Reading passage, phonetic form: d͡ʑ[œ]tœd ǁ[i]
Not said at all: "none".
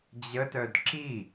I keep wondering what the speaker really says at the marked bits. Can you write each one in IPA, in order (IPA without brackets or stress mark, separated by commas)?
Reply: ə, i